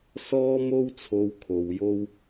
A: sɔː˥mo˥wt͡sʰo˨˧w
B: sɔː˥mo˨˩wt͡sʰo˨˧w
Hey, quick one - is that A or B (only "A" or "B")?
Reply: A